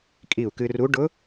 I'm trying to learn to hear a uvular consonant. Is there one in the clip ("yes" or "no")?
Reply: no